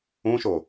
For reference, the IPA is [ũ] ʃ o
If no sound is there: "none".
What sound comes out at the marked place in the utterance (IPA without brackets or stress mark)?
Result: ũ